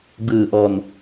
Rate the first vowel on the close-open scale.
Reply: close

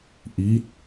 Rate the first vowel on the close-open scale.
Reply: close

